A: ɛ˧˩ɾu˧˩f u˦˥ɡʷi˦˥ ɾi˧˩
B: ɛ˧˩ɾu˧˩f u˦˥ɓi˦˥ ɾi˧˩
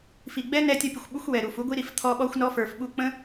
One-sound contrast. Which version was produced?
A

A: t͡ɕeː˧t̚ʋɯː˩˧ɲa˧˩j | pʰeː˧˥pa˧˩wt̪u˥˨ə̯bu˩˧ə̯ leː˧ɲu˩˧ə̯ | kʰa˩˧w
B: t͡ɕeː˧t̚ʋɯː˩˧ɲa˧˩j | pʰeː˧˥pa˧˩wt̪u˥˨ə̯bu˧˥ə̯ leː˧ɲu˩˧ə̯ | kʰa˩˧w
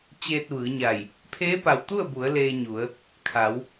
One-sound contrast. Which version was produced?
A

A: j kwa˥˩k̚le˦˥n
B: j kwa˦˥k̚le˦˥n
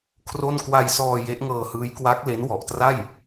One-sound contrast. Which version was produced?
B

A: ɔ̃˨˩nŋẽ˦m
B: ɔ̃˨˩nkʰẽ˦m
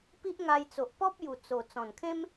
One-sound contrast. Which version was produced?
B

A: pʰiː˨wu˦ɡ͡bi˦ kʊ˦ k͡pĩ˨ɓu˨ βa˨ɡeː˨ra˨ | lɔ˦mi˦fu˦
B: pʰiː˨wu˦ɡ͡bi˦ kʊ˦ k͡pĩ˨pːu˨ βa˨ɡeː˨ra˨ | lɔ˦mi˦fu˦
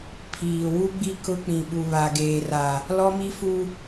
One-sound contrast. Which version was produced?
A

